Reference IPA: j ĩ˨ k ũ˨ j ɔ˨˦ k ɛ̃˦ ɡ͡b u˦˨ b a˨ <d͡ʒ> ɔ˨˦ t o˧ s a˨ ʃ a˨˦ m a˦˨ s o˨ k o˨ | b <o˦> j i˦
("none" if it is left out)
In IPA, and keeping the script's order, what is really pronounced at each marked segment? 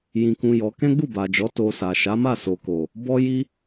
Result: d͡ʒ, ɔ˦

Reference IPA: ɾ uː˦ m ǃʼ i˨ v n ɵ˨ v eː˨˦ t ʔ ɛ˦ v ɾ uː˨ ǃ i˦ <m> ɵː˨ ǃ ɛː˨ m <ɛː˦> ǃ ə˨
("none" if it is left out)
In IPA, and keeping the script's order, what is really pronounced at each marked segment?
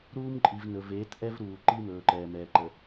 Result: m, ɛː˨

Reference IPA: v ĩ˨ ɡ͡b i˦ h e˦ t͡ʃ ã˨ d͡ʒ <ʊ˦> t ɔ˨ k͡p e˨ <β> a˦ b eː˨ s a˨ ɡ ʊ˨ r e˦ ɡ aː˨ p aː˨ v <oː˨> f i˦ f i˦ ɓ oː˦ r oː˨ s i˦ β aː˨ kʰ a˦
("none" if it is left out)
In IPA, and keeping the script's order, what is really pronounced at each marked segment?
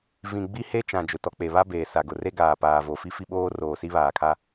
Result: ʊ˨, β, o˨

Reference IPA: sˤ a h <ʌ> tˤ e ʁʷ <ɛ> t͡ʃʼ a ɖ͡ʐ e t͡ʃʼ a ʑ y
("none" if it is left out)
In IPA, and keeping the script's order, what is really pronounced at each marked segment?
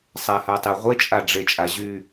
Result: a, e

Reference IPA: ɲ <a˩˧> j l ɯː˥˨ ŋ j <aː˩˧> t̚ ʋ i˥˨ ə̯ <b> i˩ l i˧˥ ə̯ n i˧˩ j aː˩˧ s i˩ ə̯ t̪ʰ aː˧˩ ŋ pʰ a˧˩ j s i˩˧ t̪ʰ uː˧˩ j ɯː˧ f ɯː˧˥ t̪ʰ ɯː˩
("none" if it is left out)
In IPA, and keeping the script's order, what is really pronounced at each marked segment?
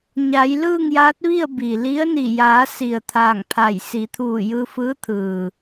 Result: a˩˧, aː˧˥, b

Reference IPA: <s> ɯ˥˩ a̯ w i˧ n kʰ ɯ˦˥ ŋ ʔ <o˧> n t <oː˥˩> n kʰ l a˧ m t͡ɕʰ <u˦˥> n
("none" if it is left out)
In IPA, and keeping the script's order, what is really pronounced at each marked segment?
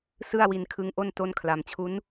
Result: s, o˥˩, o˥˩, u˦˥

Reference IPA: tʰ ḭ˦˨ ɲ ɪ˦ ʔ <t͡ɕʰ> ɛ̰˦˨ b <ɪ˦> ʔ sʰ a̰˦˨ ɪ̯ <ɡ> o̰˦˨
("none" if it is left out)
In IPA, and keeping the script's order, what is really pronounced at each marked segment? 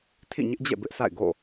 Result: d͡ʑ, ɪ˦, ɡ

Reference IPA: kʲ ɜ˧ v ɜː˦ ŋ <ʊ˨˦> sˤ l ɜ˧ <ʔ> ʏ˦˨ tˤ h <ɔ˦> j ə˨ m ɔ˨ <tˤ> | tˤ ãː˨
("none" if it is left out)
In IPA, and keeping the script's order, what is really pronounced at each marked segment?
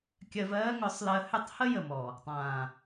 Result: ʊ˨˦, h, ə˦, none

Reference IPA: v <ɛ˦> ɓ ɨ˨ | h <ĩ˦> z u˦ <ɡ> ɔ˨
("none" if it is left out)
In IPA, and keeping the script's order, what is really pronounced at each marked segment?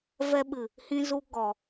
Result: ɛ˦, ĩ˦, ɡ

